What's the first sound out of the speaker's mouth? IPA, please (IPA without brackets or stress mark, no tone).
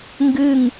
ŋ